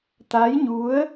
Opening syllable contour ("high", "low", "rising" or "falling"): rising